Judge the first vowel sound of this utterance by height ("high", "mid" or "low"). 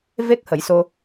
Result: mid